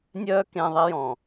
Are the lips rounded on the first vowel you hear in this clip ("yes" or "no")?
yes